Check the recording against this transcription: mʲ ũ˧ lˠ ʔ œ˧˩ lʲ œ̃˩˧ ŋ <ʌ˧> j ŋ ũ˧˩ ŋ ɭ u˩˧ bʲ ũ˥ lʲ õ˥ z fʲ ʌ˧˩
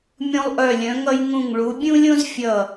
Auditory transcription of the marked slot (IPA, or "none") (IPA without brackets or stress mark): ʌ˧